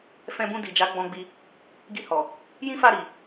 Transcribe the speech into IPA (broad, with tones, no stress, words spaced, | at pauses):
fɛ̃˧bũ˧di˨d͡ʒa˨˦ ɡ͡bɔ̃˧ɡ͡bi˧ | ɡi˧hɔ˨ | jĩ˦fa˦˨ɾi˨